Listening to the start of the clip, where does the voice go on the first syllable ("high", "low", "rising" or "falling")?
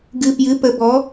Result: low